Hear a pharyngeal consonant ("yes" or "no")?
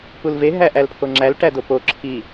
no